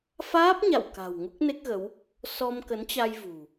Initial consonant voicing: voiceless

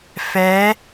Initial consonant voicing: voiceless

